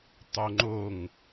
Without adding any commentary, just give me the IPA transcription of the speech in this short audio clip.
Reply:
tˤ o ŋ͡ǃ o ŋ

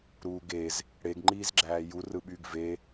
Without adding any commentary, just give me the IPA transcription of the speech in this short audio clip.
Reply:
ɾ uː ɡ e z | ɽ e ɡ ŋ͡ǃ iː z ɡ͡ǁ æː j u r ɯ ɓ yː ɡ v e

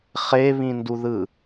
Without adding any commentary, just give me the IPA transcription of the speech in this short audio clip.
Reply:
χ e β ĩ n d u ð ɯ

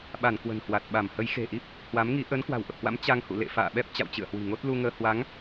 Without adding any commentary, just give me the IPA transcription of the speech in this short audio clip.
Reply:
ɓ a˧˩ n k w ə̤˨˩ n h w a˨˩ t̚ ɓ a˧˩ m h ə˨˦ j x e̤˨˩ ʔ i˦˥ p̚ | h w a˨˦ m ŋ i˨˦ ʔ əː˨˦ n k w a̤˨˩ w ʔ ə˨˩ p̚ h w a̰˧˥ m t͡ɕ a˧ ŋ h ṵ˧˨ l ḛ˧˨ f a̰ː˧˨ ɓ ɛ˦˥ p̚ t͡ɕ a̰˧˨ w t͡ɕ ɨ̰˧˨ ə̯ h w i̤˨˩ ŋ o˦˥ t̚ l u˧ ŋ əː˧ h w a˨˦ ŋ

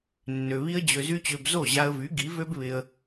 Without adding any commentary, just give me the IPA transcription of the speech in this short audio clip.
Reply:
nː ø˧ β i˦ ə̯ d͡ʑ ø˧ z y˦ t͡ɕ ø˧ b z o˦˨ ʑ a˧ ə̯ v y˨˦ ɡ i˨˦ v ø˦ b β ɪ˧ ə̯

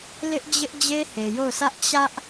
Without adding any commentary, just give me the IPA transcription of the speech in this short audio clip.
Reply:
l ɪ˦ ʔ d͡ʑ ɪ˦ ʔ d͡ʑ e˦ h e˨ j o˦˨ ʊ̯ s ä˦ ʔ t͡ɕ ä˦ ʔ

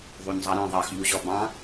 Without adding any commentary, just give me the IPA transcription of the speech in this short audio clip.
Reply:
ðˤ u ɲ zˤ ɑ ɾ ɛ̃ ðˤ ɑ x ʎ u ʑ ɔ b ɑ̃

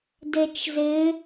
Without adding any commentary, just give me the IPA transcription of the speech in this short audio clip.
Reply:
d e t͡ʃ z ɪ

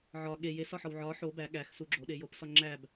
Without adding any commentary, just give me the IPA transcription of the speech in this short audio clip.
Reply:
ʕ ɒ ɠ e j e s ɒ ħ ɒ w ʕ ɒ ħ o b æ ɠ æ x s u ɡ͡ǁ o ɗ e j o p s ɒ ŋ͡ǁ æ b

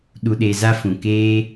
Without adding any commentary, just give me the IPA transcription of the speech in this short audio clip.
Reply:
ɗ u˧ ɗ e˧ z a˦ f ũ˨ k eː˦

